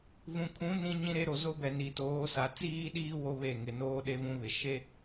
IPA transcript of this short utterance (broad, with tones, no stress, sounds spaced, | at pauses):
v ũ˨ kʰ ũ˨˦ n ĩ˦ ɲ ĩ˦ ɾ e˦ ɾ o˨ z o˦ b ɛ˨ n i˨ t oː˨˦ s a˨ t͡s iː˦ ɗ iː˦ w o˦ β e˦˨ ŋ ɪ˨ n oː˦ ɗ e˦ v ũ˦ β ɪ˨ ʃ e˦